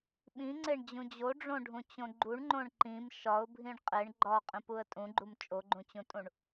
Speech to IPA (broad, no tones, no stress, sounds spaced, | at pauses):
ɓ ĩ ŋ͡ǀ e ɳ d͡ʑ ũ d͡ʑ o ɖ͡ʐ õ ɖʱ ũ t͡ɕ õ ɡ͡ǃ u ɳ ŋ͡ǃ õ ɳ ǃ ĩ m ʃ ɒ ʊ̯ bʱ ĩ ɳ qʼ e ɳ ɡ͡ǃ ɒ qʼ ĩ p u ə̯ tʼ ũ ɡ͡ǃ u m t͡ʃʼ o ɡ͡ǃ ũ t͡ɕ ũ tʼ ũ ɳ